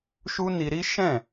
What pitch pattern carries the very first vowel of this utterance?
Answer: high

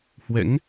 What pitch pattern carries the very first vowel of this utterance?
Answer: rising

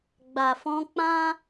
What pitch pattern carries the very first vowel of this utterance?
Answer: low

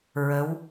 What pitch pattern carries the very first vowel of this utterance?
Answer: rising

